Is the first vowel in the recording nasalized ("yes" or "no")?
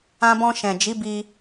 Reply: yes